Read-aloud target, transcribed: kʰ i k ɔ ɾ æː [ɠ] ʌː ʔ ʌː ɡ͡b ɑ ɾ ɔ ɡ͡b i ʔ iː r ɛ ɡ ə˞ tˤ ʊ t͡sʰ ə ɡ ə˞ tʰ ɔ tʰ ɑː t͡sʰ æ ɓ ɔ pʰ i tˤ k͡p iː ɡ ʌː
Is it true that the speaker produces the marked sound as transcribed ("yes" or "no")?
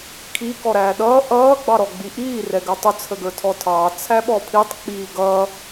no